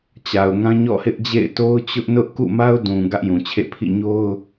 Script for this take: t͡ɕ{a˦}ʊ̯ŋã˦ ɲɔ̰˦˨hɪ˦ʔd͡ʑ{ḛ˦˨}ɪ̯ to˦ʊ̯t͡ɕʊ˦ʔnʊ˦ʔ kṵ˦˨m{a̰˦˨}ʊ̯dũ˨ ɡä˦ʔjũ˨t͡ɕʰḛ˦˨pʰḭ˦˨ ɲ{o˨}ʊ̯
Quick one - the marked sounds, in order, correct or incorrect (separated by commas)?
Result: incorrect, correct, incorrect, incorrect